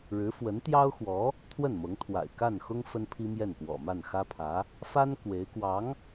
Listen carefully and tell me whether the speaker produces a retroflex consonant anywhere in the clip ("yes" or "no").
yes